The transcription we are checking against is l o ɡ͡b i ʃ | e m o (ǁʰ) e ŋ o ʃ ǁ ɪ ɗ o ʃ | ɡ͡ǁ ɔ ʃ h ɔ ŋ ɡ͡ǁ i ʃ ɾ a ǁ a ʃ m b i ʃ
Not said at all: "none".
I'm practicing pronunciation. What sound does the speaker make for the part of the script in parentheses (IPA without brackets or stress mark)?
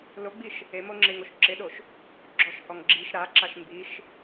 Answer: ŋ͡ǁ